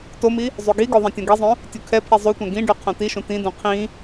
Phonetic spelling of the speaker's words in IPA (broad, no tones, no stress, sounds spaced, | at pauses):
t o m i | zˤ y ɡ i ɡ o ðˤ ɛ̃ tʲ õ ɡ i zˤ õ | tʲ u kʰ ɛ pʰ i zˤ u tʷ ɛ̃ ɡ ĩ ɖ y qʰ õ t i ʃ ũ t ĩ d ũ qʰ ĩ